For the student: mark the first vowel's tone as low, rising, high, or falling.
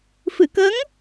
low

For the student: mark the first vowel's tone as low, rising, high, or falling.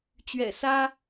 low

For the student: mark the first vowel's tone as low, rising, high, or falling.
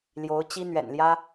rising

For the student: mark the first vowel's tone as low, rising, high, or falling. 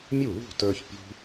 falling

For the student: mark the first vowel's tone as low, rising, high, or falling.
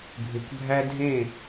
low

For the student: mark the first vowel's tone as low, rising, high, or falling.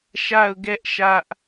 falling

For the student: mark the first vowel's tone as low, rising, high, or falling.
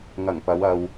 low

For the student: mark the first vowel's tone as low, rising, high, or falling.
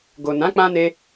low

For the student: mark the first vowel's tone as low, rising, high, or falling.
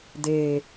low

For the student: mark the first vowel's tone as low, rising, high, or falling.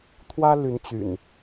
high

